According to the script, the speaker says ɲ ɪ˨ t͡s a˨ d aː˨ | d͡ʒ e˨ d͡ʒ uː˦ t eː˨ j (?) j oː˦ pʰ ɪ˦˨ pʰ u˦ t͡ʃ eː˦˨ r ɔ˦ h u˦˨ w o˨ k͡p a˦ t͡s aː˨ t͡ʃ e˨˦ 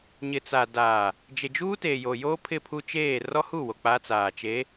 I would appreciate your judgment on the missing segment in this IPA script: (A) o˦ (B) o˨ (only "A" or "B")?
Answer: B